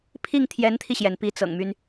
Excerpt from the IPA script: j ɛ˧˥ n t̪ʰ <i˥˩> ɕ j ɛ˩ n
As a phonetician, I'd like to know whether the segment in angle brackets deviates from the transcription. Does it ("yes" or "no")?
yes